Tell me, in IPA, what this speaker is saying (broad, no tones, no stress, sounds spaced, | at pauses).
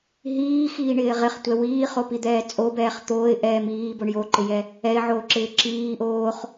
ɦ iː x iː ɳ ɪː ʁ ɪ χ tʷ ɛ w iː χ o p i d̪ ɛː t͡sʼ o b ɛː χ t̪ oː ɪ̯ ʔ ɛː m iː b o ɳ j o ǃ ɪ j ɛ | ɛ ɪ̯ ʕ oː ǁ ɪː ǁ iː ʔ oː χ